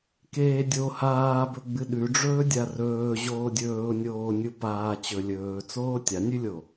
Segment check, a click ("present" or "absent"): absent